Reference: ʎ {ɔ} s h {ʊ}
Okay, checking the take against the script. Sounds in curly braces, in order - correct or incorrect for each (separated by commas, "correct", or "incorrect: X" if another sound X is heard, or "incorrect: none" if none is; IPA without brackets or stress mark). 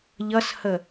incorrect: ʌ, incorrect: ə